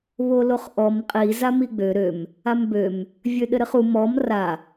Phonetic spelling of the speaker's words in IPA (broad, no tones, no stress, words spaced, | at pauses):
βoloχʔɔm qʼi zamiɡ͡bø ɾøm | ambøm | vʲøɗɘɾɘχu mɔm ra